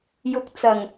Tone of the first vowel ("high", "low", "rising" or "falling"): low